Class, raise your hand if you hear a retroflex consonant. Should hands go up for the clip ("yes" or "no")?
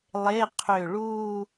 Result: yes